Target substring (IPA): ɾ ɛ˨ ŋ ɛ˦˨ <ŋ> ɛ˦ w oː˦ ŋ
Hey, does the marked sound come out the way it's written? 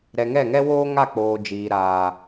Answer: yes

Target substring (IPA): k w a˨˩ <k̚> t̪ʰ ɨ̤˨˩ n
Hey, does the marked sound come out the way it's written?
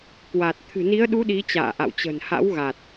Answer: no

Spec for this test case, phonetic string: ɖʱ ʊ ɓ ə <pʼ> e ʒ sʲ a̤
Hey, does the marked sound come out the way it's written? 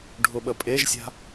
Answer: yes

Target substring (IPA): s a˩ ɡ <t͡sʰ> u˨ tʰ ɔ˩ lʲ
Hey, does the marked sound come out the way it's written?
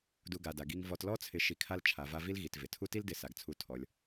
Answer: yes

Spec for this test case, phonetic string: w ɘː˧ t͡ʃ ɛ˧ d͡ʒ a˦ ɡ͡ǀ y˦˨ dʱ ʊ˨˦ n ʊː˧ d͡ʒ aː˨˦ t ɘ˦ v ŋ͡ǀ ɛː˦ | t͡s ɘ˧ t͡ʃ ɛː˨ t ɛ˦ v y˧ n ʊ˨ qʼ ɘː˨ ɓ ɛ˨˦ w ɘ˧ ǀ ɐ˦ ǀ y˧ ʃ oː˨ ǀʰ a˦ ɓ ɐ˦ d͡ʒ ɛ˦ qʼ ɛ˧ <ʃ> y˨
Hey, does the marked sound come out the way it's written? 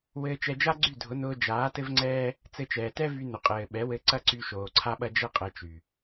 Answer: no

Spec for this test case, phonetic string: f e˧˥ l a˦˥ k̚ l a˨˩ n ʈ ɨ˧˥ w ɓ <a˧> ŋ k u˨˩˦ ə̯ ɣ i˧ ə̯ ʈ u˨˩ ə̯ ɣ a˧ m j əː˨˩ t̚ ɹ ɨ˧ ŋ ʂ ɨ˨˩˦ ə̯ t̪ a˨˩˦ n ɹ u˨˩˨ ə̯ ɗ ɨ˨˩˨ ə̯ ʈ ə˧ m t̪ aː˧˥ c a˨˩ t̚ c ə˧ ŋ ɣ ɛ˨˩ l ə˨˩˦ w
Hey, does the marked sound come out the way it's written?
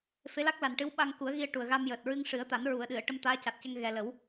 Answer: yes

